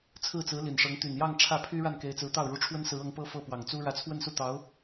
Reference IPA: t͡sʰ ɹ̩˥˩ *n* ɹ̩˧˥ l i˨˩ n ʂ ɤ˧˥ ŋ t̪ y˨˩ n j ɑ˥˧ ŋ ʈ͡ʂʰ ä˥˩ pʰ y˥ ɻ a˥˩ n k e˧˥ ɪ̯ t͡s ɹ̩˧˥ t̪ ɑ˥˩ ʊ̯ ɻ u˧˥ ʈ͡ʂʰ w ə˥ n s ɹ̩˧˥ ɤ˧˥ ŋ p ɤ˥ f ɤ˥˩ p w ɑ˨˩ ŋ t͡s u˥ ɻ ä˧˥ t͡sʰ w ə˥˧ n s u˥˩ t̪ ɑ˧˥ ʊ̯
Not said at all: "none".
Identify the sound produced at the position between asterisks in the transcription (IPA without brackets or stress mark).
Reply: t͡s